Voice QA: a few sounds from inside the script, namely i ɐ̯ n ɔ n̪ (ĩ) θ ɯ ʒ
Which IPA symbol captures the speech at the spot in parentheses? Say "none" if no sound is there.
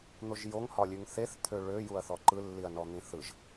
ĩ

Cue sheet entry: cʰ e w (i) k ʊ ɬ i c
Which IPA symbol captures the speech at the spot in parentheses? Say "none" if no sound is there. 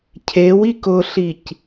i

